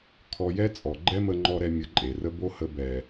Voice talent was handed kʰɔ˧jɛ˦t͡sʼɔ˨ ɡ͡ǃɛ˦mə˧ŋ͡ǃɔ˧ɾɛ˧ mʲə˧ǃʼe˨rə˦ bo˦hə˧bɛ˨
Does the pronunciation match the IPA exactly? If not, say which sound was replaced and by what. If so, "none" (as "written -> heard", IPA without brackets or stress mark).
none